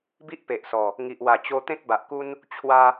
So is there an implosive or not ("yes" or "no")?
no